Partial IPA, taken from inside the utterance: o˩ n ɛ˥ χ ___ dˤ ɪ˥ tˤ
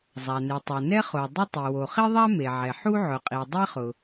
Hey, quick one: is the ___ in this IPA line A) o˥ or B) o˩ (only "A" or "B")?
B